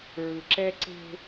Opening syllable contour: low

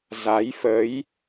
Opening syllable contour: rising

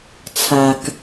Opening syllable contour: low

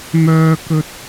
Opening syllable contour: high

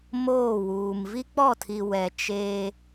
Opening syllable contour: falling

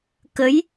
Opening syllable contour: rising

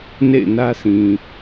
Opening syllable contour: falling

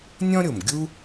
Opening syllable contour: high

